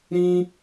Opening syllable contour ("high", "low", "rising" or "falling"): high